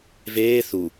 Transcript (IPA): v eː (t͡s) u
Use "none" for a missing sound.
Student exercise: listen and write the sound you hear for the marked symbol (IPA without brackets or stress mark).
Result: θ